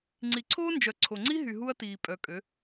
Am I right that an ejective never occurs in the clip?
no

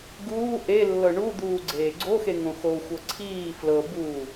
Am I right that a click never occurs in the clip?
no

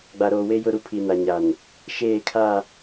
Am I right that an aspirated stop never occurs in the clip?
no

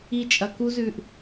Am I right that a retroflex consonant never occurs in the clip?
yes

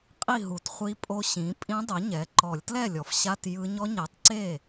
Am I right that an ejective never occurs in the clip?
no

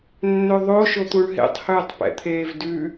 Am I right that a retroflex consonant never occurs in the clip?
no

